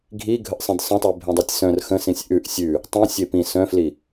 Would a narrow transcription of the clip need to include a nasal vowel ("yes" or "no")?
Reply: yes